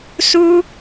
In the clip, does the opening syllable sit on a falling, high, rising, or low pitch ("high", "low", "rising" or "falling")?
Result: high